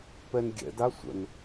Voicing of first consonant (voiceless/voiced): voiceless